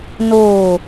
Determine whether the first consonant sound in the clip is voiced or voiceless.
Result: voiced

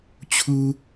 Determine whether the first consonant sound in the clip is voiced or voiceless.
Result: voiceless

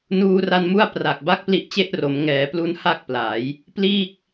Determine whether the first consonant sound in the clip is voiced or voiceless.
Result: voiced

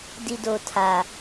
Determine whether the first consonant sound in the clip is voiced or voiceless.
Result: voiced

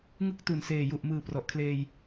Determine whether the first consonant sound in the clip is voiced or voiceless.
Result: voiced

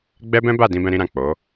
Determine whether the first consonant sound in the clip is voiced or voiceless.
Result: voiced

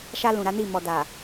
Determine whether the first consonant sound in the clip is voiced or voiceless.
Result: voiceless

